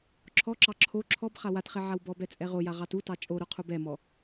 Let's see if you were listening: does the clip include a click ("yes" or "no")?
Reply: yes